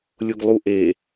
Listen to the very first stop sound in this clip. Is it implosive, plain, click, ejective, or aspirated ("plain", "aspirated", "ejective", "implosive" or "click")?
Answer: plain